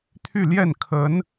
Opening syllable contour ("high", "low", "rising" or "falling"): falling